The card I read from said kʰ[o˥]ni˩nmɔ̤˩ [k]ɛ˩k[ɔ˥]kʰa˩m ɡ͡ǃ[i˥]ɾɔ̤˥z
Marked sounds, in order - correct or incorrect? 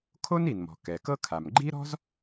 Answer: correct, correct, incorrect: ɤ˥, correct

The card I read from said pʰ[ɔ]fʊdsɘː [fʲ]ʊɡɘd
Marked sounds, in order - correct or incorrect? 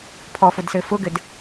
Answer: correct, incorrect: f

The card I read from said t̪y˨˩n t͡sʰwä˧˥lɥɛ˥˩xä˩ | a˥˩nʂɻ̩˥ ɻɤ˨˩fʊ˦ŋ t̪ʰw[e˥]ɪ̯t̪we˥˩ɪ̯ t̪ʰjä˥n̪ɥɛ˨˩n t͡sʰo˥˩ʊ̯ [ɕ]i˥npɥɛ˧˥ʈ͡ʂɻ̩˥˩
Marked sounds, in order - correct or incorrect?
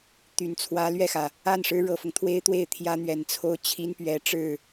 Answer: correct, incorrect: t͡ɕʰ

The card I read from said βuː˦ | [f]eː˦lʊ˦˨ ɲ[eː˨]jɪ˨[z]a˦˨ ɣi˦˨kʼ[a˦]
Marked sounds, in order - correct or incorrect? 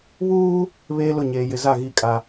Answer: incorrect: β, correct, correct, correct

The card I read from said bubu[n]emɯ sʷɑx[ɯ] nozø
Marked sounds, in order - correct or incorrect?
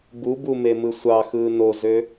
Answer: incorrect: m, incorrect: ɯː

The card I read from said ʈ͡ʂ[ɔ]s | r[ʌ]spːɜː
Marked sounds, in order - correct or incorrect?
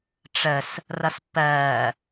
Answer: incorrect: ə, correct

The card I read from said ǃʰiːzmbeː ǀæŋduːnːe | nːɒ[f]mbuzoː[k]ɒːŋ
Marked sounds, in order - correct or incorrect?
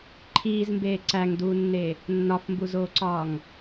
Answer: correct, incorrect: ǀ

